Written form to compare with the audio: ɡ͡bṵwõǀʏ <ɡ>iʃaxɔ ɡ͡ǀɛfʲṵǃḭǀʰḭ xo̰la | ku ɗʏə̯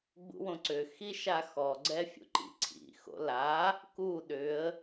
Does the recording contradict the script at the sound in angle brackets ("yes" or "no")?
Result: yes